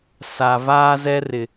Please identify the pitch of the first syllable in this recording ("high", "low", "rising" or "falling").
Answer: low